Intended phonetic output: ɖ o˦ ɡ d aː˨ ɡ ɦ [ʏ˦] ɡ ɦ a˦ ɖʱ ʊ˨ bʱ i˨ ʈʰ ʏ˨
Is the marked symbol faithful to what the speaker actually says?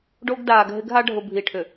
no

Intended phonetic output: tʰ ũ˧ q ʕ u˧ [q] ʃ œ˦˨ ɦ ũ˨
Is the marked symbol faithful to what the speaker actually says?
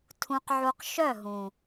yes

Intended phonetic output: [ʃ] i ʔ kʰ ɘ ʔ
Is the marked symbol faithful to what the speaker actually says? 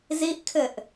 no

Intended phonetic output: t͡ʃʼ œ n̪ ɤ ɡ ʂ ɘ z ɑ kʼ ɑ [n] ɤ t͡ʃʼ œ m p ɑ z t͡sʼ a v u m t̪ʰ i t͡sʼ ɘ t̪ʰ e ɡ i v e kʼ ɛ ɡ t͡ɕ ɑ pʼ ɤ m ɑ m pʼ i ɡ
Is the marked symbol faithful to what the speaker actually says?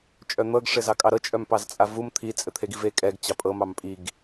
no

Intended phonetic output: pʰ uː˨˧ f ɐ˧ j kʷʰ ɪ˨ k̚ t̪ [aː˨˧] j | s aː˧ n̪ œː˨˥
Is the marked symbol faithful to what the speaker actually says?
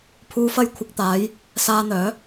yes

